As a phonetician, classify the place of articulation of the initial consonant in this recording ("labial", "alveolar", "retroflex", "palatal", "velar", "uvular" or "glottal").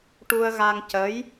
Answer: retroflex